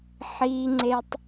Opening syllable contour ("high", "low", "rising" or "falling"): high